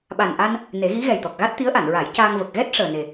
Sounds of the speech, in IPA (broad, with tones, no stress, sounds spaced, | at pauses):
ɓ a˨˩ n ʔ a˧ n | n e˨˩˦ ɣ i˧˥ ɣ ɛ˨˩ j t̪ ɔ˨˩ k̚ ɣ a˦˥ t̚ t̪ i˧˥ ə̯ ʔ a˨˩˨ n ɹ a˨˩˦ j c aː˧ ŋ v ə˨˩ k̚ ɣ ɛ˦˥ t̚ ʂ əː˨˩ n e˨˩